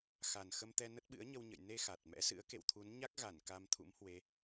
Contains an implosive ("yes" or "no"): yes